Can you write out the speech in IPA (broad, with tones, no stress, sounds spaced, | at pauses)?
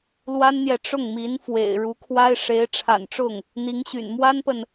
l w a˥ n n̪ j ɛ˨ ʈ͡ʂ ʊ˥˩ ŋ m i˧˥ n f w ḛ˨˩ ɪ̯ ɻ u˧˥ kʰ w a˥ ɪ̯ ʂ e˧˥ ɪ̯ ʈ͡ʂʰ a̰˨˩ n ʈ͡ʂ ʊ˥˩ ŋ | n̪ i˧˥ ŋ ɕ y̰˨˩ n m w a˥ n p ə˨ n